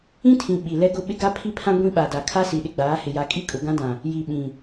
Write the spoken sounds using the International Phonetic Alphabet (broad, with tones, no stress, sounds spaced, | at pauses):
ĩ˦ tʰ ĩ˨ ɓ i˨ l ɛ˦ ɡ ʊ˦ ɓ ɪ˦ ɡ a˦ pʰ i˦ pʰ ã˦ ɡʷ ĩ˦ ɓ a˨ d a˨ kʰ a˦ s i˨ ɗ ɪ˦ ɡ͡b aː˨˦ h ɪ˨ j a˨ kʼ i˦ kʼ ʊ˨ ɡ ã˦ d ã˨ | j i˨ ɓ ĩ˨